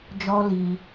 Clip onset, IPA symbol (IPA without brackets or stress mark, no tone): d͡ʒ